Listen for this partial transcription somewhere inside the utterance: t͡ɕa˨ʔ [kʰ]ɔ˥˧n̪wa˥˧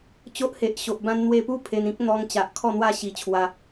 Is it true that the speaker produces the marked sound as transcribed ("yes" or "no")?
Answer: yes